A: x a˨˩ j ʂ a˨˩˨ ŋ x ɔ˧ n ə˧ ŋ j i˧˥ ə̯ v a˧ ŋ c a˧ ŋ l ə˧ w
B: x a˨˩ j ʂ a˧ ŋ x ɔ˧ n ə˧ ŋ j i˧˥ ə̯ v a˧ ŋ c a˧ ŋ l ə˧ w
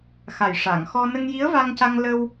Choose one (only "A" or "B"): A